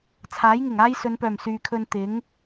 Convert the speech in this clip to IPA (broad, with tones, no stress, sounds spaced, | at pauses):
t͡sʰ aː˨˥ j ŋ ɪ˨˩ ŋ aː˥ j s ɵ˨˧ n p œː˨˩ m s yː˨ kʰ ɵ˧ n t̪ ɪ˨˥ ŋ